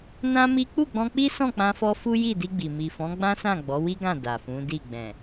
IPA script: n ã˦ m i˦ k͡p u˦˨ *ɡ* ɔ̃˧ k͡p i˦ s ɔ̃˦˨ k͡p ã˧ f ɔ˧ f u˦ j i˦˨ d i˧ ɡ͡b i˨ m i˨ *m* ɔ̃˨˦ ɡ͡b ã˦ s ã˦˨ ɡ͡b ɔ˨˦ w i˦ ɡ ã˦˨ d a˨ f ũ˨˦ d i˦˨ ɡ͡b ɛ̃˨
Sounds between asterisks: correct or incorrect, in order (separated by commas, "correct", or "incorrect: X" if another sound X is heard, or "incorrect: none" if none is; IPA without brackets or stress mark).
incorrect: ɡ͡b, incorrect: f